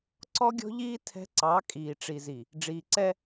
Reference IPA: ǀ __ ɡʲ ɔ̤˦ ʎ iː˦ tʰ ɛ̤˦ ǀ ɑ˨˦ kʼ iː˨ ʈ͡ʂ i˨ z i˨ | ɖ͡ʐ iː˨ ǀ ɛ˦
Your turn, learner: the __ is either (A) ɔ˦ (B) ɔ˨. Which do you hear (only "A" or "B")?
A